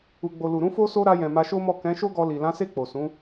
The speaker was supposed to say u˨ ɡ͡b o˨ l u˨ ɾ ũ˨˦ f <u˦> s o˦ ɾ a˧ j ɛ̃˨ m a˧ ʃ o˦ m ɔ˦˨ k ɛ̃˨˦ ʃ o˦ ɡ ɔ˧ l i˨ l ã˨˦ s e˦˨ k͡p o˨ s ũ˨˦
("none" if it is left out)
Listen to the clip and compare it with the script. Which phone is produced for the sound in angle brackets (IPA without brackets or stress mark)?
o˦